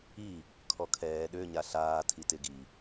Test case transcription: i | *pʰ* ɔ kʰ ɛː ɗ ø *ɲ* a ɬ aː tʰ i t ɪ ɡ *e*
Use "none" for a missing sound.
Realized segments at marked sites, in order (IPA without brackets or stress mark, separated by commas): kʰ, ɲ, i